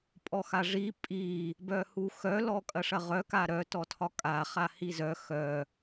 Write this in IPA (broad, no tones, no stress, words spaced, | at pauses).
pʼɔxaʐi pʼi | bœhuxœ lɔkʼɐʂɐʁœ kaɾœ tɔtʰɒkʼa χahizœ xœ